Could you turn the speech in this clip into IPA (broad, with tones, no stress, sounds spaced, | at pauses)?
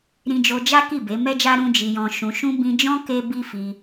ɾ ĩ˧ d͡ʒ o˧ d͡ʒ a˦ k i˦˨ b e˨˦ m ɛ˦ d͡ʒ a˦ ɾ ũ˦ d͡ʒ i˧ j ɔ̃˧ ʃ ũ˨ ʃ ũ˧ b ĩ˧ d͡ʒ ɔ̃˦ k e˦ b i˦ f i˧